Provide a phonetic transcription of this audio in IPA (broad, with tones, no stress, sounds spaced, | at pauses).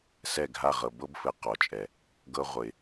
s ɛ˦˨ ɡʱ a˦˨ ʁ ɤ˨ b ɤ˦ b f ɘ˨ q ɔ˨ t͡ʃʼ ɛ˨ | ɡ ɤ˦ ʁʷ ɘ˨ ɪ̯